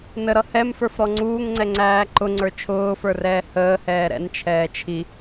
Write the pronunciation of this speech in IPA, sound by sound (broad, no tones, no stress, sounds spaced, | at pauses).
n ə ɾ ʌ h ɛ m f ə˞ f ɾ ɔ ŋ͡ǀ uː ŋ ŋ͡ǀ ɛ ŋ͡ǀ æː ǃ ʊ ŋ͡ǀ ə˞ t͡ʃʰ ʊː f ə˞ r ɛː h əː h ɛː ɾ ɛ̰ n t͡ʃʰ ɛː t͡ʃʰ i